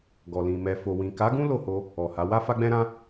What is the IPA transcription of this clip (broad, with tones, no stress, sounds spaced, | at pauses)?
ɡ ɔ˨ l ĩ˨ m ɛ˨ f o˨ w ĩ˨ k a˨˦ ɡ ũ˦ l o˦˨ h o˧ | ɔ˨ h a˨˦ w a˦ f a˦ ɡ͡b ɛ̃˦ ɾ ã˦